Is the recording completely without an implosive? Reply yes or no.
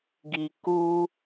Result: yes